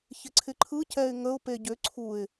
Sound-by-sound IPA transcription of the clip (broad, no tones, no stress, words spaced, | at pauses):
çɪǀʰɪǃʰɯ cɛɪ̯ŋəʊ̯ peɟʏ ǀʰuɪ̯